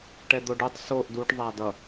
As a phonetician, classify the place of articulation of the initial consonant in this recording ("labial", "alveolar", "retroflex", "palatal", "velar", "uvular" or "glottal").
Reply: retroflex